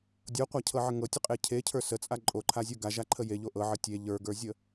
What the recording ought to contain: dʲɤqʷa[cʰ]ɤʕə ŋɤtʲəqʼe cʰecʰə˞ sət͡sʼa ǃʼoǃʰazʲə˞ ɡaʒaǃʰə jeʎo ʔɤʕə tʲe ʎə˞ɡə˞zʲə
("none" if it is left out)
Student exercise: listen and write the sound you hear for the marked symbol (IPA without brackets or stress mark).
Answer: cʰ